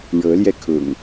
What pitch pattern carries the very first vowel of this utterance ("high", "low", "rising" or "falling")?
rising